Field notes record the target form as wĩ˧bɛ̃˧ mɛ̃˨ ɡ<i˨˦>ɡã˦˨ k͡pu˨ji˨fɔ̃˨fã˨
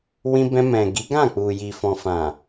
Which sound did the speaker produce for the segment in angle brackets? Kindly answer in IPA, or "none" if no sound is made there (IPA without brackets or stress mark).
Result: i˨˦